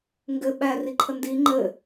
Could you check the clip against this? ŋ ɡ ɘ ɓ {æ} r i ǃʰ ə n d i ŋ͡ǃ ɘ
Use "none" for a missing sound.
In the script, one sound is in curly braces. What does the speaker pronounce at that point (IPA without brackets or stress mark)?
æ